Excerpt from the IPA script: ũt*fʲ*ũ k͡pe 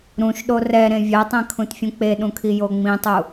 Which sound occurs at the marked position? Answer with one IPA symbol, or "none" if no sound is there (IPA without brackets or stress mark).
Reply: fʲ